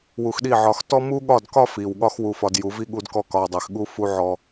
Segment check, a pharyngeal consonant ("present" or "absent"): present